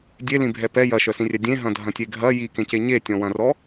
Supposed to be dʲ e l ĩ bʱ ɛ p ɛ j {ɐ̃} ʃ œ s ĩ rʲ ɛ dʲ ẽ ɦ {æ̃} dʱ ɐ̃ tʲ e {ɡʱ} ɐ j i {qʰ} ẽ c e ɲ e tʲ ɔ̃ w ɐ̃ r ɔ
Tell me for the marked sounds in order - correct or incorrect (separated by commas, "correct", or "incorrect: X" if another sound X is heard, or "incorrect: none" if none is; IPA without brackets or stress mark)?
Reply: incorrect: ɐ, incorrect: ɐ̃, correct, incorrect: k